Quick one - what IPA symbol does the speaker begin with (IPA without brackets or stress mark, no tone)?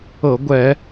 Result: ɤ